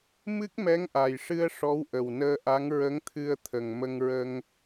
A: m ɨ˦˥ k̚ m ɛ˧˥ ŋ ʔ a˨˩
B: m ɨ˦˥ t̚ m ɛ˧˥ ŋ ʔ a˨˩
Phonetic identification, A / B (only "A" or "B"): A